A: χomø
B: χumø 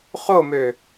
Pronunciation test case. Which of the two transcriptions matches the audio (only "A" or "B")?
A